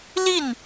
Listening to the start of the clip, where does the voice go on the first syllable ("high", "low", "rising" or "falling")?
falling